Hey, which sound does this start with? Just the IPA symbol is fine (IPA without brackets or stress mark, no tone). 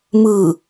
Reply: m